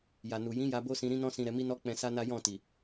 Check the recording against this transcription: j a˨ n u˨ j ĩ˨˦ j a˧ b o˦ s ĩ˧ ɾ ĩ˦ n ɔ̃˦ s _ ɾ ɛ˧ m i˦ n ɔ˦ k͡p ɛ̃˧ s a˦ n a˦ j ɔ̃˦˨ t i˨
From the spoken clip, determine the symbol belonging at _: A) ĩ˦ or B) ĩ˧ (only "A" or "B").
B